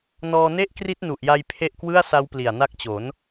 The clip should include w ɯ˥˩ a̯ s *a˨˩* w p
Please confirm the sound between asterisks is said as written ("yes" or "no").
no